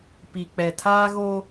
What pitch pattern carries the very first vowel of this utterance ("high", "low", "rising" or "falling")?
low